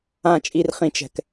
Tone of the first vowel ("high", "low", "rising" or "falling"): low